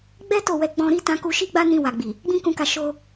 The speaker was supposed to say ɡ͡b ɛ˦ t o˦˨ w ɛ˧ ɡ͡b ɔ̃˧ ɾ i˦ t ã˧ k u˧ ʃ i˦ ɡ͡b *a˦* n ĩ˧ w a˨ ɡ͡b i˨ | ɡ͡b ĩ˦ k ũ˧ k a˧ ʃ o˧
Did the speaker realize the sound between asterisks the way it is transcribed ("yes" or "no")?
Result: yes